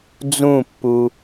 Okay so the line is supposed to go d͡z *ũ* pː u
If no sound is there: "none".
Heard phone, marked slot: ũ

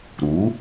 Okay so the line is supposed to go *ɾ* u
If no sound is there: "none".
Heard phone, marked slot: ɾ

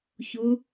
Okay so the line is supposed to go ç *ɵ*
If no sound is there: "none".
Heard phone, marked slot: ʊ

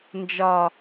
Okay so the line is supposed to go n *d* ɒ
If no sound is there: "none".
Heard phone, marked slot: d͡ʒ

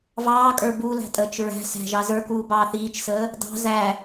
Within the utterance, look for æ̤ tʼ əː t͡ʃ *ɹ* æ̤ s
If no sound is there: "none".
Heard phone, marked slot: ɹ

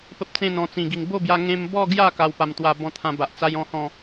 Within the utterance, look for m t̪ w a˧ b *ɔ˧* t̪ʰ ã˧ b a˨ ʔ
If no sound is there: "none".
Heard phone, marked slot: ɔ̃˧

